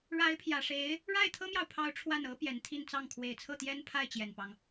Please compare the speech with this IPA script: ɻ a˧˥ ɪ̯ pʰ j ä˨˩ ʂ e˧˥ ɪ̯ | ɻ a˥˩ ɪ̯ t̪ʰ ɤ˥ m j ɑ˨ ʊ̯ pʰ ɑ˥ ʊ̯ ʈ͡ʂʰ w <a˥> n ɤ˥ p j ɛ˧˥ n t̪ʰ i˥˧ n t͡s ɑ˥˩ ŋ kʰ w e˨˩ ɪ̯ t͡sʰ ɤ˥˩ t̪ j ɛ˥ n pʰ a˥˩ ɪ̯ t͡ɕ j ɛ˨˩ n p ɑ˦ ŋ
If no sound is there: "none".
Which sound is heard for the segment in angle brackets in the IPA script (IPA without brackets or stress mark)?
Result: a˥˩